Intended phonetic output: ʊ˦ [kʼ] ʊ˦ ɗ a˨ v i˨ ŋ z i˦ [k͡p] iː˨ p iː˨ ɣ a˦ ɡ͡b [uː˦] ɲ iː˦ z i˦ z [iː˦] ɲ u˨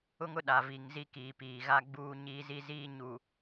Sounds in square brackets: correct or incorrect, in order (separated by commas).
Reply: incorrect, incorrect, correct, correct